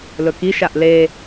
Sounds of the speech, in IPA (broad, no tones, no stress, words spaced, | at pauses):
lɵkiʃaʔ le